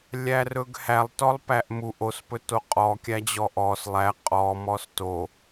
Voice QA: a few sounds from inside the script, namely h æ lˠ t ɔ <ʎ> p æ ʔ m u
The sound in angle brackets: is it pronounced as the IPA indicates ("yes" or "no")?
no